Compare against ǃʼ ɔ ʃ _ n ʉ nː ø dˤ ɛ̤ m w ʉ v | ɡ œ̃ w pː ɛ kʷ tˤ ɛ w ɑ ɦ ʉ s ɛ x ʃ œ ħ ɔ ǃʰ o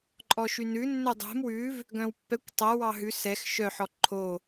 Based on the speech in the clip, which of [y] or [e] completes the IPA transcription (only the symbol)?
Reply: y